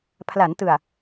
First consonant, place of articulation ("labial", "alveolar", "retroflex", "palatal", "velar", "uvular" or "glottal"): labial